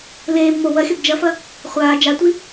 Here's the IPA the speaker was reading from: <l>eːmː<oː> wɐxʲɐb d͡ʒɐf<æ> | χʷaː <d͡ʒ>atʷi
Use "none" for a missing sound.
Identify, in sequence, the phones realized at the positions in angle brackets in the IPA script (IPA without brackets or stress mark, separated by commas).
l, o, ɐ, d͡ʒ